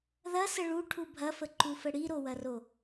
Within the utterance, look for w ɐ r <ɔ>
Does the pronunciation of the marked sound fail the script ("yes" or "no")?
yes